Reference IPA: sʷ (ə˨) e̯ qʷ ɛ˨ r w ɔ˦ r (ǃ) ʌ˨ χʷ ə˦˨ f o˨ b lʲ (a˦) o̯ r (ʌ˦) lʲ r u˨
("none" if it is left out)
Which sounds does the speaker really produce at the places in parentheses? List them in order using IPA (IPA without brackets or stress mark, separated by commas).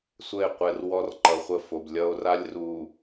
ə˦˨, ǃ, ʌ˦, a˦